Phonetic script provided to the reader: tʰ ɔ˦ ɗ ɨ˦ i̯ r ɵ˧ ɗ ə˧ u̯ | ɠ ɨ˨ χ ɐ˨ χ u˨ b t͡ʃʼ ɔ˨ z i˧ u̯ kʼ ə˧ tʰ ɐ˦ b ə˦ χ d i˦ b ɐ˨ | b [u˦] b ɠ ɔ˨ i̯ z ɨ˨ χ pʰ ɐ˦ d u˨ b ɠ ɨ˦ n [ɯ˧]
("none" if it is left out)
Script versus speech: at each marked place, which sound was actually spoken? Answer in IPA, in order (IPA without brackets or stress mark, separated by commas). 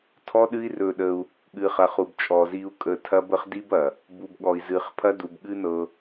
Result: u˨, ɤ˧